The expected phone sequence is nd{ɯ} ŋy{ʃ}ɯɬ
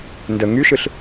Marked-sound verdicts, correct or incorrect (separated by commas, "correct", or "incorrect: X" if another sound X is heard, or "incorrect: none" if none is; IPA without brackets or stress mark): incorrect: ə, correct